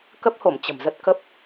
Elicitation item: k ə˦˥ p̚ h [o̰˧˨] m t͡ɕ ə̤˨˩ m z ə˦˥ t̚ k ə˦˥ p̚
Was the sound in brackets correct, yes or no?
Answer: no